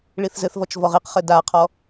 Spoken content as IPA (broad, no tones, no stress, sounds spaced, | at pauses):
ɭ i θ z ɘ θ v ɔ t͡ʃ v ɔ ʁ i q χ ɘ d a qʰ ɔ